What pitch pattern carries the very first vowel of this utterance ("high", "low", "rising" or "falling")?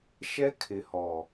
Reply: high